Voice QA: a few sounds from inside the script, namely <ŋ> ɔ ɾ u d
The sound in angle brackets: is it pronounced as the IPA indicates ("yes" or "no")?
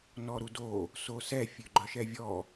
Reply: no